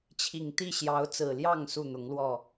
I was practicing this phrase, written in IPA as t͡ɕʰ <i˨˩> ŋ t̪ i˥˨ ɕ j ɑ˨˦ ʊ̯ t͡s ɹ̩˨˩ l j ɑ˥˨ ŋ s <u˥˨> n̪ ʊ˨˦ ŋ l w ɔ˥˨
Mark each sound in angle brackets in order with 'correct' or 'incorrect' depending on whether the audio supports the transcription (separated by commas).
correct, correct